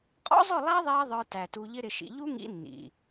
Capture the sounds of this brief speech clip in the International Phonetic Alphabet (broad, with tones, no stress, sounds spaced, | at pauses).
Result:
qʼ ɔ̰˦ zˤ ʊ˦˨ lˠ æ˦ ðˤ iː˧ ðˤ ə˞˧ t æ˨ t u˧ ʎ ɪ˦ ɾ ɪ˧ ʃ ḭ˧ ʎ u˦ ŋ ḭ˧ nː ḭ˨